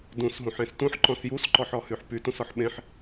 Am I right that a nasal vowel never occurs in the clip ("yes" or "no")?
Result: no